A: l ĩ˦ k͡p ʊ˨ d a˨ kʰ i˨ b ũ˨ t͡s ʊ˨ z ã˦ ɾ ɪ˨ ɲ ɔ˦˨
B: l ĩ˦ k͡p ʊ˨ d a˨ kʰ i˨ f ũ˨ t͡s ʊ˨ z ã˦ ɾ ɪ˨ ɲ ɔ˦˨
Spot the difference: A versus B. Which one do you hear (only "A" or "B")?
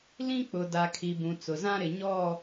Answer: A